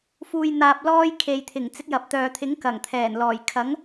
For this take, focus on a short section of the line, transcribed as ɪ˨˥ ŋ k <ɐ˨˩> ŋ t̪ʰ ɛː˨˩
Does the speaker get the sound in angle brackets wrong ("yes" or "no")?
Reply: no